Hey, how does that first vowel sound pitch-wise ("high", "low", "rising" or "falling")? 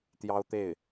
high